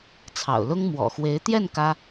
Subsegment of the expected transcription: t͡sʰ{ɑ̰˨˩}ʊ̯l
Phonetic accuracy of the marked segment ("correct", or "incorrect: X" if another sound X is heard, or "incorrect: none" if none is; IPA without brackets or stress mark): correct